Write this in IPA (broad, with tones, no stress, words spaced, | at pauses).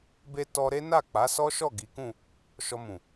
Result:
be˧ tɔ˧ɾe˦na˦˨ k͡pa˨˦sɔ˦ʃɔ˦˨ ɡi˨˦kũ˦˨ | ʃɔ˧mũ˨